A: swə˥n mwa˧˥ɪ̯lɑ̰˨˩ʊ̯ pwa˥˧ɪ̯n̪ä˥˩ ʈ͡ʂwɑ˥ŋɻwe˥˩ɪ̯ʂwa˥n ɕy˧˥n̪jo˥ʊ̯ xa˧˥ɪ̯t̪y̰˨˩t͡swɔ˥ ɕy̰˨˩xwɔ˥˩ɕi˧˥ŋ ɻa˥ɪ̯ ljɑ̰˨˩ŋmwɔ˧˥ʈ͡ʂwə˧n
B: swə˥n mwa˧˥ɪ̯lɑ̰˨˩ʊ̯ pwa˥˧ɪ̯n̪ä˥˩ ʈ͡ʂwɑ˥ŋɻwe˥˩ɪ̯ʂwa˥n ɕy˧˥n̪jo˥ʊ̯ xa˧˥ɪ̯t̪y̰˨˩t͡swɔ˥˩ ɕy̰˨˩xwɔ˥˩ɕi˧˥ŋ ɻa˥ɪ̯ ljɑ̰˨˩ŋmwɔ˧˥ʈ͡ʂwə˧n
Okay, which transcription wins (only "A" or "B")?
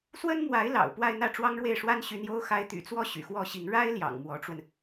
B